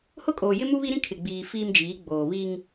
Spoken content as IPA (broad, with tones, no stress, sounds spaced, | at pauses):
h ʊ˦ kʼ oː˨ j ɪ˦ m u˦ β i˦ ɾ ĩ˦ kʰ ɪ˨ ɡ͡b iː˨ f iː˦ m d͡ʒ iː˨˦ ɡ͡b oː˨ β i˦ ŋ